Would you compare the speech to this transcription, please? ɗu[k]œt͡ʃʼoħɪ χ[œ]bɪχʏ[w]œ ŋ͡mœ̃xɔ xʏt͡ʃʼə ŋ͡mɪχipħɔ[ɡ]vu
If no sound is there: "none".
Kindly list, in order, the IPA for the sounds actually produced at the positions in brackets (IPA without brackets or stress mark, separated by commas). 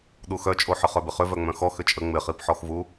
x, œ, v, x